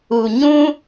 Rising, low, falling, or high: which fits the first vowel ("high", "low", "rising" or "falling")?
low